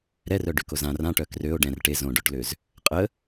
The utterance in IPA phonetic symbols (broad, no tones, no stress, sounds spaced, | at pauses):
ɾ ɛ r œ ɖ y k o z ã r ã ʈ œ k r ø o̯ ɖ ɛ̃ r ʈ e z õ ɖ o ʈ l ø z | qʼ ə